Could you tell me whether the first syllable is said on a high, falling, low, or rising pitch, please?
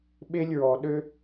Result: high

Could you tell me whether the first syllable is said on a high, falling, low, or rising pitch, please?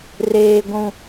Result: high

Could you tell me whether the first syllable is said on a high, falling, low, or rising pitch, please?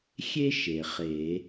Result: high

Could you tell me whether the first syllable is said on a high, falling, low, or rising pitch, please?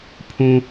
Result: low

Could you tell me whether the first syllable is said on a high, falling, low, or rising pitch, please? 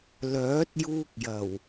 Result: rising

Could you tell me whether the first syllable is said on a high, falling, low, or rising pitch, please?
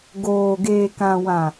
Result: low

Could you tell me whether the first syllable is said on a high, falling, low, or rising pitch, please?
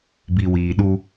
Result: low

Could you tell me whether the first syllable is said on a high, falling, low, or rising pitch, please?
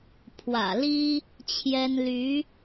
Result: low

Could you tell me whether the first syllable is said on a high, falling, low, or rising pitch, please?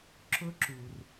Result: high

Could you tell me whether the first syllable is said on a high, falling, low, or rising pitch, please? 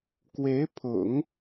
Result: rising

